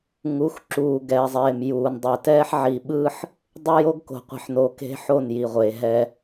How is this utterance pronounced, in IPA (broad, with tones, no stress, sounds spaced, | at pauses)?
ŋ u˨˦ x ǁ uː˨ ɡ ɛː˨ zˤ eː˨ m j uː˨ n dˤ ɛ˨ t ɛː˦ ħ ʕ i˨ ɓ ɯ˦ ħ | dˤ e˦ j o˦ ɡ k o̤˨ qʷ i̤˨ ħ n o˨ k e̤˦ ħ o˦˨ n j i˨ ʁʷ eː˨ ɦ ɛ˦